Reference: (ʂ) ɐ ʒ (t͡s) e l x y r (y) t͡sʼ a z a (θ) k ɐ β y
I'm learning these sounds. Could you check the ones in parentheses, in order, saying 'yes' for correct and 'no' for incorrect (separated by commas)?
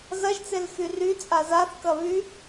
no, yes, yes, yes